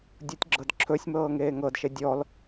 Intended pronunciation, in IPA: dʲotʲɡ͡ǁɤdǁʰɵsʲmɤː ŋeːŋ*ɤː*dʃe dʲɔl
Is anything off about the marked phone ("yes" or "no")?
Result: yes